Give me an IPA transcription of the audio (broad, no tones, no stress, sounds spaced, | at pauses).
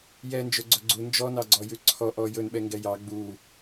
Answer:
j ɛ n d͡ʒ ɵ ɡ͡ǀ ɵ ɡ͡ǀ u n d͡ʒ ɔ n ɑ ɡ͡ǀ ɔ j ʉ ǀʰ ɔ ʔ ɔ j ɵ n ɓ ɛ ŋ ɡ ɛ j ɑ ɡ͡b u